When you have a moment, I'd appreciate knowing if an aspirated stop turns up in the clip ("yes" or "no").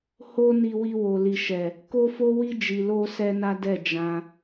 no